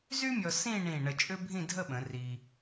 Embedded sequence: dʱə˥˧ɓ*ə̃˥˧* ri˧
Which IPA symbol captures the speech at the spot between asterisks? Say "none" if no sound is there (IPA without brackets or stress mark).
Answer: ə̃˩˧